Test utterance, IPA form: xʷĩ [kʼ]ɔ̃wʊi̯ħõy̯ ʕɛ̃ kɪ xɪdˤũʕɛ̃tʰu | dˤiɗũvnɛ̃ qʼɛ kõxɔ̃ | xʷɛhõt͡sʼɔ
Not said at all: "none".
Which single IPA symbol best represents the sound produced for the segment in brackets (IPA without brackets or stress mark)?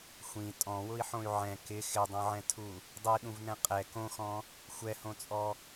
tʼ